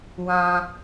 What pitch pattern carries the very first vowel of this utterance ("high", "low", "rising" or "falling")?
low